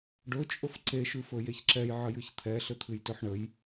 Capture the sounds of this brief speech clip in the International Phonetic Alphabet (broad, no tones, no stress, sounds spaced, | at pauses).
ɖ ɵ t͡ʃʼ ɵ f ǀ e ʃ ʉ f ɵ j e ç ǁ ɛ j ʕ ə j ɨ ç t̪ʰ ɛ ɬ ɘ t̪ʰ ɨ j t ɵ ħ ɳ ə j